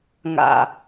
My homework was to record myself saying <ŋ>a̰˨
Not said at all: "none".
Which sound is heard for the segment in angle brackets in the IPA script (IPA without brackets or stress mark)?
ŋ